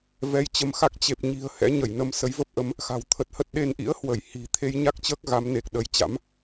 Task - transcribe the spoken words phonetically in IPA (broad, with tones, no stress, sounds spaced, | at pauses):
v ɛ˨˦ j t͡ɕ ə˨˦ m x a˦˥ k̚ t͡ɕ e˨˩ p̚ ɲ i̤˨˩ ə̯ h ɛ̰˧˥ ɲ ə˧˩ j n ə˧ m s ə˨˦ j v ə˦˥ p̚ ʔ ə˨˦ m | x a̤˨˩ w t̪ʰ ə˨˩ t̚ h ə˦˥ t̚ ɗ e˧ n ʔ ḭ˧˥ ə̯ h w ə˧˩ j h i̤˨˩ t̪ʰ e˧ j ɲ a˦˥ k̚ t͡ɕ əː˦˥ k̚ ɣ a˨˦ m n e˨˩ k̚ ɗ ə˨˦ j t͡ɕ a̰˧˥ m